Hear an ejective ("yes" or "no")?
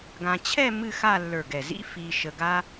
no